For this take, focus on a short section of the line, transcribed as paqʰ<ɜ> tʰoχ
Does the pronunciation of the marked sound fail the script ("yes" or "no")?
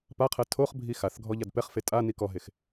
no